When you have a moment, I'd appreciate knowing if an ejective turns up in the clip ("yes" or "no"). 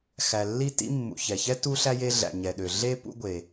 no